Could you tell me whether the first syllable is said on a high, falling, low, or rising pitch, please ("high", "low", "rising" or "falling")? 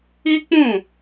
high